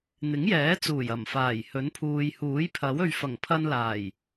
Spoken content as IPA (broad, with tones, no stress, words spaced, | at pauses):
n̪ɪ˨˥ŋjɛː˨˥t͡suː˨˩j ɐ˨˩mfaː˨˩jhɵ˨˥n pʰuː˨jhuː˨˥jpʰɐ˨˥w ɵ˨ɥfɐ˨˩ŋpʰɐ˧nlaː˨˩j